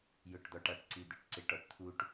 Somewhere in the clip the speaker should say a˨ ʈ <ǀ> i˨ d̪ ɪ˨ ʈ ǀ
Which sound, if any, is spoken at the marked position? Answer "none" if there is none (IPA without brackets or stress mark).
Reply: ǀ